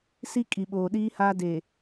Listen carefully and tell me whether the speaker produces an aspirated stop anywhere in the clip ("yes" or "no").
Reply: no